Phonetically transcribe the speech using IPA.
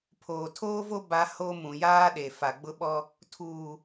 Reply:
pʰ oː˨ tʰ oː˦ v o˦ b a˦ h o˦ m ũ˨ j aː˦ ɗ e˨ f a˨ ɡ͡b ʊ˦ ɓ ɔ˦ | tʰ uː˨

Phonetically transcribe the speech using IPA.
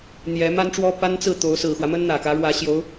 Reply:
n̪ j ɛ˧˥ m a˥ n ʈ͡ʂ w ɔ˥ p a˥ n t͡s ɹ̩˥˩ t̪ o˧˥ ʊ̯ s ɹ̩˨˩ x w ä˦ m ə˥ n n̪ ä˨˩ k ä˧˥ ɻ w ä˧˥ ɕ j o˧˥ ʊ̯

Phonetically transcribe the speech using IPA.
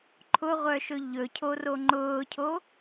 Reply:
ǃʰ ʊ ʁʷ œ ʃ ɵ ʎ ɵ cʰ o r o ŋ͡ǃ ʊː cʰ o

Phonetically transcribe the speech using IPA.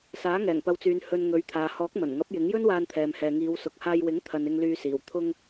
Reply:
s aː˨˥ ŋ ɛː˨˩ ŋ p ɐ˨˧ w t͡s yː˨ n h ɵ˧ n ŋ ɵ˨˥ ɥ t̪ʰ aː˨ h ɔː˨˥ k̚ m ɐ˨˩ n ŋ ɐ˨˥ p̚ j ɪ˨˥ ŋ j ɵ˥ n w aː˧ n t̪ʰ ɛː˨ m h ɛː˨ ŋ iː˨˧ w s ʊ˨ k̚ h aː˧ j w ɪ˨˥ ŋ t̪ʰ ɐ˨ n ɪ˧ ŋ l yː˧ s iː˨˩ w t̪ʰ ʊ˧ ŋ

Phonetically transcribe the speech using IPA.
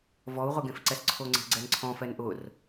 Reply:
v ɔ u̯ ʁ ʊ ɡ ẽ f ǀ ɛ s ǀʰ o ŋ͡ǀ e̤ ɡ͡ǀ ɛ n ǀʰ ɔ̃ f ɛ n ʔ ʊ r

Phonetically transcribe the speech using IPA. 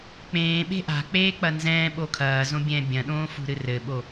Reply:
k͡p ẽː ɓ e̤ ʔ a̤ k͡p eː k͡p ɐ n z ɛ̃ː ɓ o kʰ ɐː z õ bʲ ɛ̃ː bʲ ɐ̃ ɗ õː f ṳ ɾ ɨ r ɘ ɓ o

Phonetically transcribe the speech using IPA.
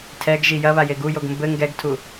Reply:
tʰ ɛ ɡ ʒ i j ɐ β a j e ɡ u j o ɡ m b ɘ ŋ ɡ ɛ ɡ tʰ u

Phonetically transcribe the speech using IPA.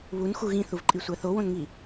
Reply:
β u n x u ɣ ĩ θ u v ǃʼ i sʷ æ θ o w õ n ŋ i

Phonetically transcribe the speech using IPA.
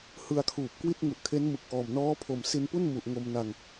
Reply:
h ɯ˧ a̯ kʰ uː˨˩ p̚ k w i˥˩ t̚ ŋ u˨˩ ʔ kʰ e˦˥ n m ɯ˨˩ k̚ ʔ ɔː˨˩ m n ɔː˦˥ pʰ o˨˩ m s i˧ n p u˥˩ n m u˨˩ ʔ ŋ o˧ m n a˧ ŋ

